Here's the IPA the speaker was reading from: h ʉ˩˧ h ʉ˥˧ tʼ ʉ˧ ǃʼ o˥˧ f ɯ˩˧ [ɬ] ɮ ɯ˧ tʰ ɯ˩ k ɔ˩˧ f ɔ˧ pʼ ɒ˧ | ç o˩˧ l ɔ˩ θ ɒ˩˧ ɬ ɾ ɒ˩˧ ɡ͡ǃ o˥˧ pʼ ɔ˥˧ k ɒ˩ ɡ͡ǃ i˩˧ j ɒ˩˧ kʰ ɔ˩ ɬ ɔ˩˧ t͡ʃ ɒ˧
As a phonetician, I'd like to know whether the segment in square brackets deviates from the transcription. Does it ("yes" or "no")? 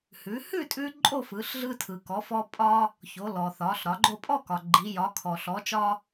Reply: no